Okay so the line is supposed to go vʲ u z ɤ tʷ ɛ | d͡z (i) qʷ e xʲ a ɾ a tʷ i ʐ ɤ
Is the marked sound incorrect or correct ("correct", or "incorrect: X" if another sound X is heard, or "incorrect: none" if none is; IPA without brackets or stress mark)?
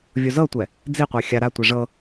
correct